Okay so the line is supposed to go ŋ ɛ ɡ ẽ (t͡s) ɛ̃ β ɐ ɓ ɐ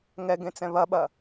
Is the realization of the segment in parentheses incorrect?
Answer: no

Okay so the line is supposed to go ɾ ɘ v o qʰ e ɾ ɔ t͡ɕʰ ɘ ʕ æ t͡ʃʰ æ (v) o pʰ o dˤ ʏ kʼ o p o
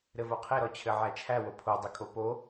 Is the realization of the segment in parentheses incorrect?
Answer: yes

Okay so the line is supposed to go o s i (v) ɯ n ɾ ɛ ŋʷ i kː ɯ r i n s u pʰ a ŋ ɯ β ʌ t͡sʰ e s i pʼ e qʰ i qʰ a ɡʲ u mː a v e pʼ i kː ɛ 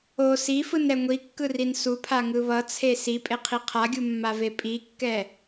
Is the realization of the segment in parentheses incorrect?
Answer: yes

